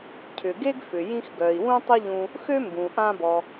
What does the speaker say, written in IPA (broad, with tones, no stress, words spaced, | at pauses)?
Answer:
cʰʏ˩ɡe˥ɡfʏ˩ jĩ˥x ɡœ˩i̯wũ˥ tˤʊ˥ʎũ˧ | xø˥mbũ˩ ʔã˧bɔ˩